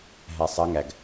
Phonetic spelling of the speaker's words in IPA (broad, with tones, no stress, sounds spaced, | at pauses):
ɦ æ˧ sˤ ɐ˦˥ ŋ æ˧ ɡ